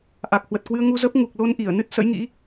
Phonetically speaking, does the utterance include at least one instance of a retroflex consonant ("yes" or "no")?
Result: no